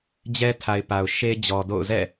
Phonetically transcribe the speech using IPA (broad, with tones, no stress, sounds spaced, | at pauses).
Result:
d͡ʑ ɛ˦ tʰ a˨ ɪ̯ p a˨ ʊ̯ ʃ e˦ d͡ʑ ɔ˨ d o̰˦˨ ʊ̯ z ɛ̰˦˨